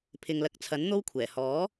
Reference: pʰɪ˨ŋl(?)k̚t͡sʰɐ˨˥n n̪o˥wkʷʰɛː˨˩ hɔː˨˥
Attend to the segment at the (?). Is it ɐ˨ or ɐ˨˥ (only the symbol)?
ɐ˨˥